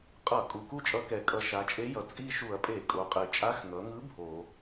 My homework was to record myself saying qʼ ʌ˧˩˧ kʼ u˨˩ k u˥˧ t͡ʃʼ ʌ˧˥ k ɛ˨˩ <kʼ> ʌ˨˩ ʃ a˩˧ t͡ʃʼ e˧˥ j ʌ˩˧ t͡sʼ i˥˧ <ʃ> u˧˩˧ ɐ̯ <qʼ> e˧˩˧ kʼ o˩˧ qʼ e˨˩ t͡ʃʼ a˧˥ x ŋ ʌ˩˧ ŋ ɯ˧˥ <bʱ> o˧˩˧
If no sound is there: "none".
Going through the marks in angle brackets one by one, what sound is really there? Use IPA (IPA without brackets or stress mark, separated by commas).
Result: kʼ, ʃ, pʼ, bʱ